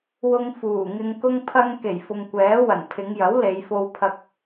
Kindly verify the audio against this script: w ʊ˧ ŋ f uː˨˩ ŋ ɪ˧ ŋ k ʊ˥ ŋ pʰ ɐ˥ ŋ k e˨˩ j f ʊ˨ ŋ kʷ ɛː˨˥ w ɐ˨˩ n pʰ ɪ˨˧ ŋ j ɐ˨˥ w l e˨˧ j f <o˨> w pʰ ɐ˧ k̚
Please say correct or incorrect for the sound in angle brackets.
incorrect: o˧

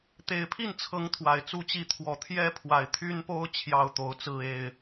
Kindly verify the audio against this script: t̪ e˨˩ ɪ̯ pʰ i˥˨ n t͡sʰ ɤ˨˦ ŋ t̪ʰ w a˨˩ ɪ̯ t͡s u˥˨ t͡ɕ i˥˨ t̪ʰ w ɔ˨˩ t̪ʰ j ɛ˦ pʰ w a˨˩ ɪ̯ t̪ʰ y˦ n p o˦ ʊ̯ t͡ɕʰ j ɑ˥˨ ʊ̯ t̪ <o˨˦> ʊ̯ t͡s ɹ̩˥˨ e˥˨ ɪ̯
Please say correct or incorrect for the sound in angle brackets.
correct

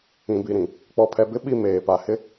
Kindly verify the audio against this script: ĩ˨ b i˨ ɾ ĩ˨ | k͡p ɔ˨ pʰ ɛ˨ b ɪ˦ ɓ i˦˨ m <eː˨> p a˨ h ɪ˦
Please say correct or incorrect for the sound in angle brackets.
correct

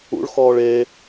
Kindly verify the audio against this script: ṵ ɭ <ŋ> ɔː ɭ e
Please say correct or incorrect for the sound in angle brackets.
incorrect: x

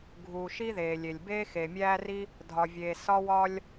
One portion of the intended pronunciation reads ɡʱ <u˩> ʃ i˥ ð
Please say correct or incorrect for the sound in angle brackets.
correct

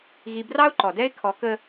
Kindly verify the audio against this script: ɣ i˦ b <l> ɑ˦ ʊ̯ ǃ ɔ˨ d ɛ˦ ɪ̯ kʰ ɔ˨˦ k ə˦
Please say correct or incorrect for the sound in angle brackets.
incorrect: r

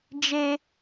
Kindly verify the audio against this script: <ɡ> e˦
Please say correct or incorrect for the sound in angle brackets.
incorrect: d͡ʒ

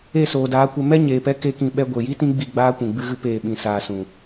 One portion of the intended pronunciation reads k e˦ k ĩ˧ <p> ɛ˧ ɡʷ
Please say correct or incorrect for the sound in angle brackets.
incorrect: ɓ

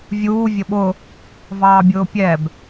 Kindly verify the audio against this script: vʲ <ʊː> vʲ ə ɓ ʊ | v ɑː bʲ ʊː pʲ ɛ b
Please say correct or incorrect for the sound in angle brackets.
incorrect: uː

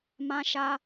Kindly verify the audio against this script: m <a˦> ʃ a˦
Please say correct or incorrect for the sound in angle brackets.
incorrect: ã˦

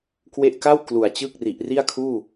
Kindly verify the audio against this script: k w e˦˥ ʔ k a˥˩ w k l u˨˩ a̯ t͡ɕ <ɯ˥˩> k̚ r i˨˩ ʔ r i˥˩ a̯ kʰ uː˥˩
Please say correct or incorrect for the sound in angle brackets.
correct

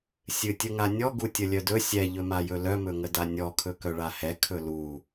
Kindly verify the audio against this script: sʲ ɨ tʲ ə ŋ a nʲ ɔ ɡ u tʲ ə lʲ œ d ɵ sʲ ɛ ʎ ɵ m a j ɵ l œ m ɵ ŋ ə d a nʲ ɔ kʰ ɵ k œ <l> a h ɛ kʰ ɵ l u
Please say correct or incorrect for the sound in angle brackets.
incorrect: ɭ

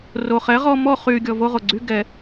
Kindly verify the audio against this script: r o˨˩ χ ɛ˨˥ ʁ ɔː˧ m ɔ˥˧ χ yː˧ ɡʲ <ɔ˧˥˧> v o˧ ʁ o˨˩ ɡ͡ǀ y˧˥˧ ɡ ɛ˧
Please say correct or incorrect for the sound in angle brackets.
incorrect: ɔ˧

